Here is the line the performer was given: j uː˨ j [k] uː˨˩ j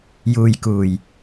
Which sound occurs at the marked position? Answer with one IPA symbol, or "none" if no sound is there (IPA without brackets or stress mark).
k